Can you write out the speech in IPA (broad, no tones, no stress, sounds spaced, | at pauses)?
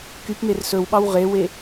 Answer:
k y p m e r s ɵ w ɓ ɑ w ʁ e w e